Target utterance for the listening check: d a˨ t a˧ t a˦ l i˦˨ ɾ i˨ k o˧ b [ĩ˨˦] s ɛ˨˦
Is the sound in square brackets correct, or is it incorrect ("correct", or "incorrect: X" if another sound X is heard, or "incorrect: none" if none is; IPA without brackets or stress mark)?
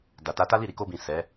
incorrect: ĩ˨